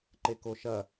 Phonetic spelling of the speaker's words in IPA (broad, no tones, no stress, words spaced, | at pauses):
ǃekoʃɐ